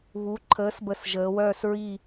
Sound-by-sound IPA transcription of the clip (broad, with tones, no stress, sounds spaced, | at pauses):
β u˩˥ ǃʰ əː˩˥ s b ə˨˩ s ʒ əː˩˧ w œː˦˨ s ɹ i˦˨